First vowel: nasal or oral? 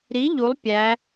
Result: oral